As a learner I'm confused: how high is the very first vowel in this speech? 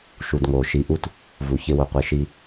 high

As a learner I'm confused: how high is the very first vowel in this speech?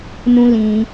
high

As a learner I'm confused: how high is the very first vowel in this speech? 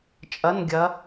low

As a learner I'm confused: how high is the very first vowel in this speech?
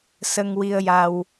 mid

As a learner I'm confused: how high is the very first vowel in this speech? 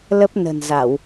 mid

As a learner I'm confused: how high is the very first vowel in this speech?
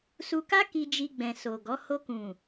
high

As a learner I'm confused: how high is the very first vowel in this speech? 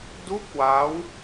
high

